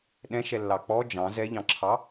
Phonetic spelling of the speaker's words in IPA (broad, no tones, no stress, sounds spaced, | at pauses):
ɗ ɛ̃ ʃ ɛ lː ɑ k͡p ɔ d͡ʒ ɑ̃ z ɛ ʎ ɑ̃ ǁʰ ɑ